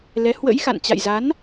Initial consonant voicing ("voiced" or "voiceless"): voiced